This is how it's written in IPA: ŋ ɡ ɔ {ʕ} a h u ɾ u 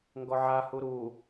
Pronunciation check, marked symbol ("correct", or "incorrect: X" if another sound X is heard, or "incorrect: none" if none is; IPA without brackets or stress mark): correct